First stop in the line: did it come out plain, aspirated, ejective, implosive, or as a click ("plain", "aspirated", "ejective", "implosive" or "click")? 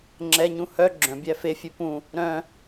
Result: click